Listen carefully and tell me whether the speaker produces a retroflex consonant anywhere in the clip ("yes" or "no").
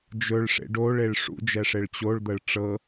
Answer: yes